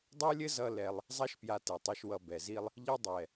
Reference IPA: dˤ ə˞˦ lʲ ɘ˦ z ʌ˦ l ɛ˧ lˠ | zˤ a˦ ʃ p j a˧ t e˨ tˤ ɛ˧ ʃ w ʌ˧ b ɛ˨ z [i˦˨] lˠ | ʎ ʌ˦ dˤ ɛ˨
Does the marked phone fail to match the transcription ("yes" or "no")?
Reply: yes